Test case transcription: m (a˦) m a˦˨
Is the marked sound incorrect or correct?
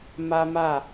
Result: correct